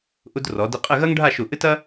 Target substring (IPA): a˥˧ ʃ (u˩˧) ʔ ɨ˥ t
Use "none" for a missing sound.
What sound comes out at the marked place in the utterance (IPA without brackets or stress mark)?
u˧˩